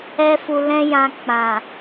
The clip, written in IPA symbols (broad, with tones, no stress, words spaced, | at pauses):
ɛ˦fu˧lɛ̃˦ jã˧ k͡pã˨